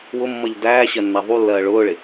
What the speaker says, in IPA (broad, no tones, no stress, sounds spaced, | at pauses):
w ʊ mː ʌ ʎ d æː ɕ ɜ nː æ ðˤ u lː ɜː ɭ ʊː ɭ ɪ